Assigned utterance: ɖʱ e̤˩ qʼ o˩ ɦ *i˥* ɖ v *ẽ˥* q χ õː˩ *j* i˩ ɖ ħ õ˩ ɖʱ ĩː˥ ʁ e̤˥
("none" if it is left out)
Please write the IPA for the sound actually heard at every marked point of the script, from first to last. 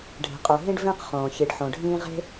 ĩ˥, ẽ˥, ç

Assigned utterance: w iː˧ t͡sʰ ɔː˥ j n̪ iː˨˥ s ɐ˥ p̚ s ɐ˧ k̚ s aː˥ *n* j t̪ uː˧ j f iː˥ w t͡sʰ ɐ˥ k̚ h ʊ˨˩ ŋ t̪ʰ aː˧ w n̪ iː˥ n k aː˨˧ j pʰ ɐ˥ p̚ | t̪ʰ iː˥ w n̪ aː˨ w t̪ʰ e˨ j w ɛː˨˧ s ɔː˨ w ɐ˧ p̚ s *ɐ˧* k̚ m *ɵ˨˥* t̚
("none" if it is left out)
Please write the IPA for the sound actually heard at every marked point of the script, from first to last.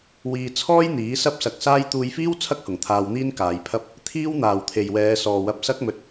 none, ɐ˥, ɵ˧

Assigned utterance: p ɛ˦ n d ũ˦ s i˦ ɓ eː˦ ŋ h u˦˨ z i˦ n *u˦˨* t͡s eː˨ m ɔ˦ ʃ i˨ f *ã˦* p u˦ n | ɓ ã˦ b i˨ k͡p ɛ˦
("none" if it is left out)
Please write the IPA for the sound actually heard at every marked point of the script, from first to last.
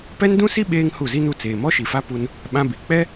u˦˨, a˦

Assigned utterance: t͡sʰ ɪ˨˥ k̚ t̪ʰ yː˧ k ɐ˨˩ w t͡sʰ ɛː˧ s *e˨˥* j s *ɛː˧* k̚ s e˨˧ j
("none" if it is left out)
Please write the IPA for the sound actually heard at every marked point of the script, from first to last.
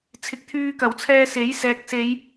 e˨˥, ɛː˨

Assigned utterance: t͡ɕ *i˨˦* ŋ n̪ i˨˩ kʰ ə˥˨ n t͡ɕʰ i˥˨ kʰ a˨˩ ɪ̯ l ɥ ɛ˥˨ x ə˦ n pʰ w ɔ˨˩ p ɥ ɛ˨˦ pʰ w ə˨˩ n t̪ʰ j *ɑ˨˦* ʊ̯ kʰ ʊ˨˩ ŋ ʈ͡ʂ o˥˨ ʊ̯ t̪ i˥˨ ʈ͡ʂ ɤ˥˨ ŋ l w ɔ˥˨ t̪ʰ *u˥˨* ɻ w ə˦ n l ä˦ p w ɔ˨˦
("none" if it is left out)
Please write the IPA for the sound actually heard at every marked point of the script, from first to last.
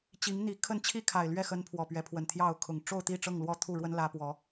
i˨˦, ɑ˥˨, u˥˨

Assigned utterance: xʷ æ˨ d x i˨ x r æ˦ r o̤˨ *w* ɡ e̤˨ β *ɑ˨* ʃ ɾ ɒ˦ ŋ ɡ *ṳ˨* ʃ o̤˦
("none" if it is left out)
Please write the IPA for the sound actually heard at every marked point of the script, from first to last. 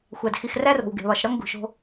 w, ɒ˨, ṳ˨

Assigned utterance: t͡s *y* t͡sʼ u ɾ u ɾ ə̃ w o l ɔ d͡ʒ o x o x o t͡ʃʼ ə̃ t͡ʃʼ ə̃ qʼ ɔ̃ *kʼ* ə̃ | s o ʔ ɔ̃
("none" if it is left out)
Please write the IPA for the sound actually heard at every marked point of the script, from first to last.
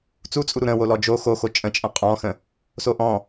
u, x

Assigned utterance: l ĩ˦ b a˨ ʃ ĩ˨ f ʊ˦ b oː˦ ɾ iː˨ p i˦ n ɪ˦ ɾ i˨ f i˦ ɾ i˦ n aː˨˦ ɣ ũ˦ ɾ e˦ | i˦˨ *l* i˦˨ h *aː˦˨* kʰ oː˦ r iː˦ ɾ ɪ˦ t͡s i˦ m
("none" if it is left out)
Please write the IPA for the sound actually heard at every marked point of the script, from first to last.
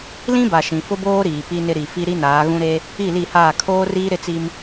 l, aː˦˨

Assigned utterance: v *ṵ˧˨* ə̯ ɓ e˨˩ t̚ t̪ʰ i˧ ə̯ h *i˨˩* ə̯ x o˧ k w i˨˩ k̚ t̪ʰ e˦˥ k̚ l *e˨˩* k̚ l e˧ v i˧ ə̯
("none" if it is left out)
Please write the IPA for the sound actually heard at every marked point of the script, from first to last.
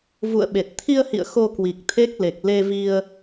ṵ˧˨, ḭ˧˨, e˨˩

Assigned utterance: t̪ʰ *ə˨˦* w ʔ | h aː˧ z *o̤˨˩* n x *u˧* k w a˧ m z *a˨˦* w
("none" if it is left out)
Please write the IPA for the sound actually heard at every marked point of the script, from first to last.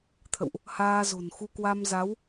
ə̰˧˨, o̤˨˩, u˧, a˨˦

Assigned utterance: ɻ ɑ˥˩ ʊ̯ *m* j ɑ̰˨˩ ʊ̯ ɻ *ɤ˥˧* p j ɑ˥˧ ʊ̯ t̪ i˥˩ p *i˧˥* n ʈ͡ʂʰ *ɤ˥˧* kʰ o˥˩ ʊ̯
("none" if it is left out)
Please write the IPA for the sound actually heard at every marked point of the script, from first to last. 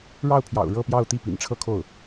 pʰ, ɤ˥˧, ḭ˨˩, ɤ˥˧

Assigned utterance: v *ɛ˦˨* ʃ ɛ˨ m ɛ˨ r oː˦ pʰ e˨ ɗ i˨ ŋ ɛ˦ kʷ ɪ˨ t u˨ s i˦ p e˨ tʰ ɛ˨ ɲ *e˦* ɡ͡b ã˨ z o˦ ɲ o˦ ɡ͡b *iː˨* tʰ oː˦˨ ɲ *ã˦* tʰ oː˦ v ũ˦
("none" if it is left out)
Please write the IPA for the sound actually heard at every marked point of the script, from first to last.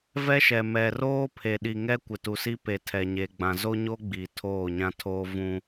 ɛ˦, e˨, i˨, ã˦

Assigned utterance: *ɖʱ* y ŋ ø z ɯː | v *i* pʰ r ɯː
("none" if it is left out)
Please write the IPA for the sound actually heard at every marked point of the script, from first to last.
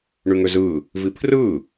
ɳ, i

